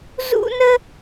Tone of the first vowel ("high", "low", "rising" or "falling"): high